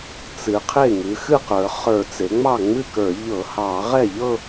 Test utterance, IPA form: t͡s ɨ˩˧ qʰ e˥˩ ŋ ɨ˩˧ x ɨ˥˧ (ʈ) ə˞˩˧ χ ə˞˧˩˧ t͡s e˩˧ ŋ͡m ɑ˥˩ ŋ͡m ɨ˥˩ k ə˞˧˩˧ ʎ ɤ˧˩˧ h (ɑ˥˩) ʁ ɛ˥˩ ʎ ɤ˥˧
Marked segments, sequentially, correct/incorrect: incorrect: q, incorrect: ɑ˧˩˧

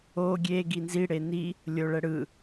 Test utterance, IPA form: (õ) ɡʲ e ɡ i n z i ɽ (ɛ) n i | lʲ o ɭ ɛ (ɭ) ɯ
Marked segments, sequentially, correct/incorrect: incorrect: o, incorrect: e, incorrect: ɽ

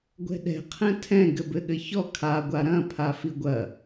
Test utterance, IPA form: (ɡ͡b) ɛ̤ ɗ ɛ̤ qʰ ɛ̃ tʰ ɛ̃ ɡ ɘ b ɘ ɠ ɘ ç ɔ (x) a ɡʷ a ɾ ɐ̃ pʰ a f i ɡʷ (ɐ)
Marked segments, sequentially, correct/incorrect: incorrect: ɡʷ, incorrect: kʰ, correct

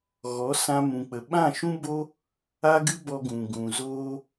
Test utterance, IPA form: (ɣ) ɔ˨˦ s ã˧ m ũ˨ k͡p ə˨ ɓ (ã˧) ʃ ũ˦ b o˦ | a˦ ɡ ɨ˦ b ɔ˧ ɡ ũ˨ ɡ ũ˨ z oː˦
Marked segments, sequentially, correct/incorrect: correct, incorrect: ã˦˨

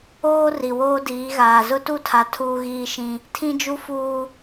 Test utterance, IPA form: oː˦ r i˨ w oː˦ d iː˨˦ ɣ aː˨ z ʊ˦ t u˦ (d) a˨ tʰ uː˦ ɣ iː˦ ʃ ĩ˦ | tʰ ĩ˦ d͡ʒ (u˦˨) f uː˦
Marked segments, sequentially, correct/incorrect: incorrect: tʰ, incorrect: u˦

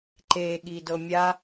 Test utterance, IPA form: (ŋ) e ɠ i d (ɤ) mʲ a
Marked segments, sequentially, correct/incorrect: incorrect: ǃ, correct

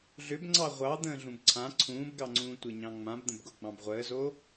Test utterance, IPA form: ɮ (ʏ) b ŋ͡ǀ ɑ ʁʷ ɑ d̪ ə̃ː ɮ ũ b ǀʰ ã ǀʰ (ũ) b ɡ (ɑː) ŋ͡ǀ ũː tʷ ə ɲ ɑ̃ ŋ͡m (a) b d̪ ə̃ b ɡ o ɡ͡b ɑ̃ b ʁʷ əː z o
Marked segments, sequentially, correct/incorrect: correct, incorrect: ũː, incorrect: ɑ, incorrect: ã

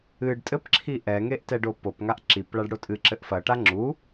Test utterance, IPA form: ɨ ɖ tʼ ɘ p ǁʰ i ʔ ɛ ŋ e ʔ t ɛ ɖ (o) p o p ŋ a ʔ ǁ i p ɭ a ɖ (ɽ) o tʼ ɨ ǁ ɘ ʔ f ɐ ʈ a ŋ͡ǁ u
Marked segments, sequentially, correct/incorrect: correct, correct

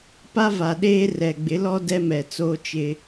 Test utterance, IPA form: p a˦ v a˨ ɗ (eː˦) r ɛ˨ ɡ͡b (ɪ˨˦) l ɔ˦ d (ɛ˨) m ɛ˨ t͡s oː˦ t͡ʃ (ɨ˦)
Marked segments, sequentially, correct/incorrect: correct, correct, incorrect: ɛ˦, incorrect: ɪ˦

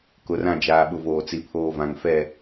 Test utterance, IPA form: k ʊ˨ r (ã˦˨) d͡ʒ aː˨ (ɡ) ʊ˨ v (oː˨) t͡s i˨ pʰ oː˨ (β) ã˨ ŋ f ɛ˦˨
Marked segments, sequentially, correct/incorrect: correct, incorrect: ɓ, correct, incorrect: v

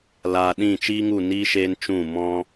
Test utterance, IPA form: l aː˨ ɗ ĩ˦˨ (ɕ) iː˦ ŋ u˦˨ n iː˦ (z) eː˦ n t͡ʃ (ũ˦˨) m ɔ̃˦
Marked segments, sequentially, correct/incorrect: incorrect: t͡ʃ, incorrect: ʃ, correct

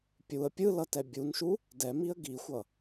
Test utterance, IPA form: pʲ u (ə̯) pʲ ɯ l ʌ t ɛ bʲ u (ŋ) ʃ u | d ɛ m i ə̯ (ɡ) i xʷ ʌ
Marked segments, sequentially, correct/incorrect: correct, incorrect: n, correct

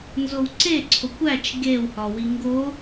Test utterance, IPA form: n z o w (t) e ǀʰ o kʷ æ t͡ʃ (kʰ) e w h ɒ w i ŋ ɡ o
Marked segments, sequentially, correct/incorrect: incorrect: ǀ, incorrect: ɡ

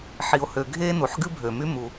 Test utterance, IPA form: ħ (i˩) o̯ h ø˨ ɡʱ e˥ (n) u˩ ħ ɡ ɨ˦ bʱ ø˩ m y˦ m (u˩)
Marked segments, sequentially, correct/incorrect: incorrect: i˨, correct, correct

